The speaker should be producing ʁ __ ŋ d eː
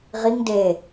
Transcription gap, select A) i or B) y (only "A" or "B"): A